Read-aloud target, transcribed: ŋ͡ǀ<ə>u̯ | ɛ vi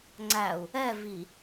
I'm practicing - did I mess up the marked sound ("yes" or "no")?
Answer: yes